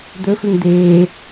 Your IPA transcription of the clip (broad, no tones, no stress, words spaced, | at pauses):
d̪ɵfʉŋ d̪eː